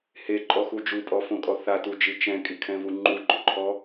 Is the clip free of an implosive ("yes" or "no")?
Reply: yes